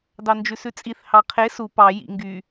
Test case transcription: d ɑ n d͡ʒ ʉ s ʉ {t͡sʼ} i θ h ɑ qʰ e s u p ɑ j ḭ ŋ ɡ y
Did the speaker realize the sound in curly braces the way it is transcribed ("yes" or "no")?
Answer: yes